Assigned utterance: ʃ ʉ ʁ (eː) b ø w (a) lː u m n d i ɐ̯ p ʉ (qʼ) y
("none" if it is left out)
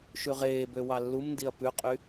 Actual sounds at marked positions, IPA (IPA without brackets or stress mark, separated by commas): eː, ɑ, qʼ